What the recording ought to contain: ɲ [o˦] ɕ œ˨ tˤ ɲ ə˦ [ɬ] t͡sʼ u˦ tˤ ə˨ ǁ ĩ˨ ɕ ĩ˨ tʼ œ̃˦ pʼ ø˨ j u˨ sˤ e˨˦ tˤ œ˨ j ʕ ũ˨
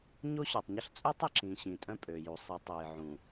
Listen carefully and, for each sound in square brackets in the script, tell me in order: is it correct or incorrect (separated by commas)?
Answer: correct, correct